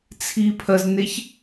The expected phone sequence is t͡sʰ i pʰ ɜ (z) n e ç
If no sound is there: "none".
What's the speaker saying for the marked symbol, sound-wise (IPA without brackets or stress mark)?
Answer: z